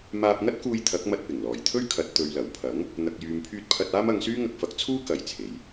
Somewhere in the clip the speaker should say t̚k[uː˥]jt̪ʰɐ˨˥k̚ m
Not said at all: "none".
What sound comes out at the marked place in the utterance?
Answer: uː˧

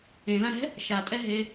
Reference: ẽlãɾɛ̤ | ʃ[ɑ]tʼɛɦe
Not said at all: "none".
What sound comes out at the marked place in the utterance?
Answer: a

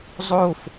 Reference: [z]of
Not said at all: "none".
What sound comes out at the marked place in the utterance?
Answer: zˤ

